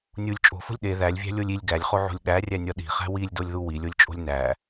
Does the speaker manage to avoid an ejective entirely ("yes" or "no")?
no